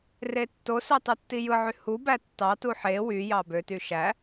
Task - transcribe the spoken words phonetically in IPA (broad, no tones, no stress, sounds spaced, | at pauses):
r e tː o s ø tˤ u tː i j ɯ ʕ y h u b æ tː ɑ t u ħ e w y j ɑ b ø t y ʃ æ